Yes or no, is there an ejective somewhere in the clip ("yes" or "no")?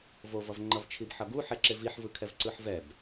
no